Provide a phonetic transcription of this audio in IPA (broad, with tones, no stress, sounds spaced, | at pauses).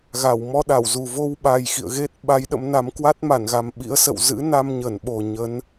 ɣ a˧˩ w m ɔ˧ ɗ a˧˩ w z u˨˩ v o˧ w ɓ a˨˩ j x ḭ˧˨ ə̯ ɣ e˦˥ t̚ ɓ a˨˦ j ɗ ə̰˧˥ m n a˨˦ m k w a˦˥ t̚ m a˧˩ n ɣ a˨˩ m ɓ ḭ˧˥ ə̯ s ə̰˧˨ w z ɨ̰˧˥ n a˧ m ɲ ə˧˩ n ɓ o˨˩ ɲ ə˨˦ n